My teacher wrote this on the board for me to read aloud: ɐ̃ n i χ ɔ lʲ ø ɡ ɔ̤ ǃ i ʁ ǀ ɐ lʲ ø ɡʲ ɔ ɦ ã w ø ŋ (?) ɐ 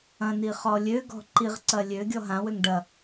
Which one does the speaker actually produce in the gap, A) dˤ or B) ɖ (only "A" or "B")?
B